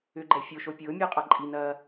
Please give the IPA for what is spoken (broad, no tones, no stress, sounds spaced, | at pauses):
ʏ ɡ͡ǃ ɛ fʲ o ʃ o pʲ ʊː mʲ ʊː qʼ a ǃʼ i n ɐː